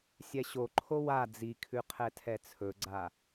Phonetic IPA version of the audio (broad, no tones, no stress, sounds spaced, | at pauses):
sʲ ɛ ɕ o ǃʰ o w a d͡z i kʰ ʉ qʰ ɛ tʰ ɛ t͡sʰ ɵ ɡ͡ǀ a